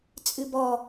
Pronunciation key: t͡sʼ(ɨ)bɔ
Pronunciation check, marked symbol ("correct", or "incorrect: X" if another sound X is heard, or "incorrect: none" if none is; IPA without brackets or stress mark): correct